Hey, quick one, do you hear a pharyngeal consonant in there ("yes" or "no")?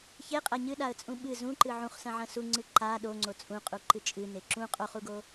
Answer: yes